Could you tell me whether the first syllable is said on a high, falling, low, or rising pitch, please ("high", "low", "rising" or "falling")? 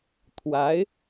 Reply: rising